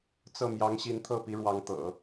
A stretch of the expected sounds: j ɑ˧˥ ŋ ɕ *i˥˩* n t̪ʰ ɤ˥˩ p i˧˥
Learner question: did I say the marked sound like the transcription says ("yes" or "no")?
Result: no